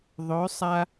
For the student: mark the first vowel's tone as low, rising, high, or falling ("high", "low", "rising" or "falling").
rising